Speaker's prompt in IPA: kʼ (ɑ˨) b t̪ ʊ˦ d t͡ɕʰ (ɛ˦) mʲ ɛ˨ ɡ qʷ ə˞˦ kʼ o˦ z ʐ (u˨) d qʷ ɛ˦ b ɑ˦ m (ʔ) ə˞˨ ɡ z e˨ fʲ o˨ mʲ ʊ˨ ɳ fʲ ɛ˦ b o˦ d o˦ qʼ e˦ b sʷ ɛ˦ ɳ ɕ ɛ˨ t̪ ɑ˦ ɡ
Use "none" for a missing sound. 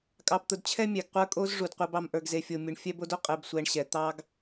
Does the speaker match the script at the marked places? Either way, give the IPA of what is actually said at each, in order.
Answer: ɑ˦, ɛ˦, u˨, ʔ

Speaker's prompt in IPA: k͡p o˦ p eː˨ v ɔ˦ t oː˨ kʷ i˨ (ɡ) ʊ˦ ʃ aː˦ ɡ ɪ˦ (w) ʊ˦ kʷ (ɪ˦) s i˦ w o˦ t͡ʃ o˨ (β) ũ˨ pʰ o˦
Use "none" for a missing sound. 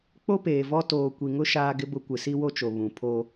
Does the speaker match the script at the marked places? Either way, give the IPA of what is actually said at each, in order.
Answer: ŋ, b, ɪ˨, β

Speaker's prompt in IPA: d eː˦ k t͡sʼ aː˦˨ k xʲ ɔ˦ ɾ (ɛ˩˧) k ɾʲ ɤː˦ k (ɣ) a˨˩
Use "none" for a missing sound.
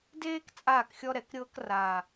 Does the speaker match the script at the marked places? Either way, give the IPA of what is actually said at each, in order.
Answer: ɛ˩˧, r

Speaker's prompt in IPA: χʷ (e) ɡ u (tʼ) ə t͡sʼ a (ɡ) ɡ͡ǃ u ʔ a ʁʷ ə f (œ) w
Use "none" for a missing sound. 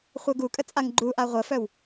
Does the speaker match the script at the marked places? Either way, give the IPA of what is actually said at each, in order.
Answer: ɛ, kʼ, ŋ, œ

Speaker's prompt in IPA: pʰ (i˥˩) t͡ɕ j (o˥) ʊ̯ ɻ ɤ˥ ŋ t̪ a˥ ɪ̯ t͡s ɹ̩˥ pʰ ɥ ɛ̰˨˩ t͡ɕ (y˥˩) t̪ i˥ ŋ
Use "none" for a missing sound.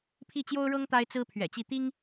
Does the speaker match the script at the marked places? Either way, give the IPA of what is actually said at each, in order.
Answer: i˥˩, o˥, i˥˩

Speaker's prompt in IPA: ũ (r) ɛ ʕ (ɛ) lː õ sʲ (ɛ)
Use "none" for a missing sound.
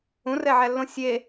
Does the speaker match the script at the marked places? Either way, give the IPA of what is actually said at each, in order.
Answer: r, æ, e

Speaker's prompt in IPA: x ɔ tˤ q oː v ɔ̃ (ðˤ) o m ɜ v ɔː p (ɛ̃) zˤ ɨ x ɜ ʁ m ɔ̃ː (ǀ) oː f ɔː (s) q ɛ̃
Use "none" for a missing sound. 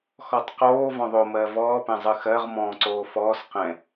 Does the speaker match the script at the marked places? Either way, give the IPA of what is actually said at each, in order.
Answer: ðˤ, ɛ̃, ǀ, s

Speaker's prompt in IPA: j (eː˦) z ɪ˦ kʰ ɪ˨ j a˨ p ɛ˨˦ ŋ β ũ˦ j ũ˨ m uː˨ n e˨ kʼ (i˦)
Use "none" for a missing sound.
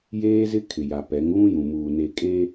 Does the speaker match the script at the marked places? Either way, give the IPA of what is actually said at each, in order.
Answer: eː˦, e˦

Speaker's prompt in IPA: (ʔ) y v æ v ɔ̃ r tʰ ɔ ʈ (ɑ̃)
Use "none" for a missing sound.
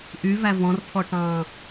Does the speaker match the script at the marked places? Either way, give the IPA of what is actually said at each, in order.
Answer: ʔ, ɑ̃

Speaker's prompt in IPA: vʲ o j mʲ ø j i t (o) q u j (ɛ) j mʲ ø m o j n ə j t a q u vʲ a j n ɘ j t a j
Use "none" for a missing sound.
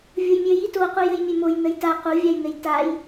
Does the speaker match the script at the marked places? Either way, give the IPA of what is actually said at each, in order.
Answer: o, ɘ

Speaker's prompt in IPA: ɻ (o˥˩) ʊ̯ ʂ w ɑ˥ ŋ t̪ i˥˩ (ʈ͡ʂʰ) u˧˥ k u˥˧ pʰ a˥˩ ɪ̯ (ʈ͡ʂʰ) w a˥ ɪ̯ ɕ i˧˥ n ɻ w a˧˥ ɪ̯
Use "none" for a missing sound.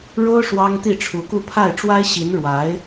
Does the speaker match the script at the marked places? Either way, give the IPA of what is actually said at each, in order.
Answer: o˥, ʈ͡ʂʰ, ʈ͡ʂ

